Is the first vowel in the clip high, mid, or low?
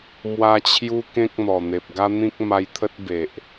low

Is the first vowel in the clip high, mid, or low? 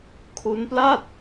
high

